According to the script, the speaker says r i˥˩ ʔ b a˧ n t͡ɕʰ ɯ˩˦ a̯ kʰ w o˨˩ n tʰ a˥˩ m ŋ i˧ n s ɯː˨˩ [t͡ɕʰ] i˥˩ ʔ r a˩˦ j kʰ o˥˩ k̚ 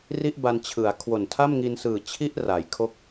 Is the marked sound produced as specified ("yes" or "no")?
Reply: yes